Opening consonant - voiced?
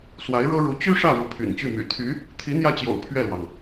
no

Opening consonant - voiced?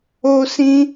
no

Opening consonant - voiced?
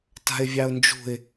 no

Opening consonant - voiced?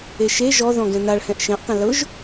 no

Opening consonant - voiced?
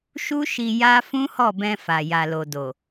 no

